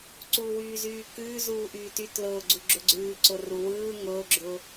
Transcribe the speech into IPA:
ǀ uː w yː z yː k ʉː z uː ʔ yː t y t l ʊː ɡ͡ǀ u ɡ͡ǁ ʊ ɡ͡ǀ ʉː ǀ ʊ r u w ɯː ŋ ʊː ɡ͡ǁ ʊː

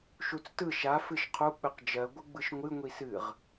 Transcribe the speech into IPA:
ʃ u t͡s t ɯ ʃ a f ɨ ʃ qʰ u k͡p ɨ q d͡ʒ ɜ ɡʷ ɯ ɡ͡b ɯ ʃ ŋʷ ɨ ŋʷ i s ɨ ʁ

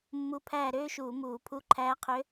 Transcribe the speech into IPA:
mː u˧˥ pʰ æː˦˨ ɾ øː˥ ʃ uː˧˩˧ m uː˧˩˧ pʰ u˧˥ ǃʰ æː˧˥ qʰ ø˧˥

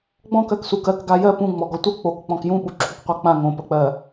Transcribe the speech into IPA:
ɡ͡b ɔ̃ k ɜ k s u k ɜ k ɡ a j ɜ p ũ ŋ͡m ɔ ɡ ɔ tʷ ɤ k͡p o k k͡p ɔ̃ k j ũ ɓ u ǁʰ u k qʷ a k͡p ã ŋ õ p ə k͡p ɜ

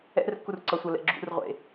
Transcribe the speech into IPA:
ɛ̰ r kː u r ǀ ʌ sʷ ʌ l ɛ̰ ɡ͡ǁ ṵ r ʁʷ ḛ

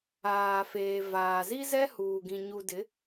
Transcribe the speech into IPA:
aː˨ f eː˨ v aː˨ z i˦ z ɛ˦ h uː˨ ɡ ĩ˨ ɲ u˨ d ɪ˨˦

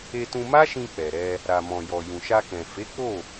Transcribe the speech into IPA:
e˧ t ũ˧ m a˦ ʃ ĩ˧ k͡p ɛ˨ ɾ ɛ˧ | ɾ a˨ m ɔ̃˨ j ɔ˨ j ũ˨ ʃ a˧ k ɛ̃˨ f e˨˦ k͡p o˦˨

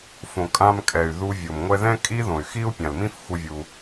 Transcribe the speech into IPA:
f õ˨ kʼ ã˧ m kʼ ɛ˨ y̯ ð u˧ vʲ o˨ m ŋʷ ɛ˦ ð ɛ̃˦ kʼ i˦ ð õ˨ y̯ x i˦ u̯ pʲ ã˨ l m ĩ˦ f xʷ ɯ˧ vʲ u˧

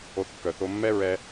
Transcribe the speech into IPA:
o˧ θ kː œ˨ θ o˧ mː ɛ˦ ɹ ɛ˧

